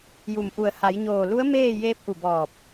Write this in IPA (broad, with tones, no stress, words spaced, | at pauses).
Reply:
ju˧˩mʔu˧˩ə̯ ha˩˧jɲoː˧˩lu˧˥ə̯ meː˥˨ jeː˧˥p̚ʔu˧˩bɔː˧˩p̚